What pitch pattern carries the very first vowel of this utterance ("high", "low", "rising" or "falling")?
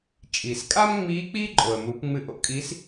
low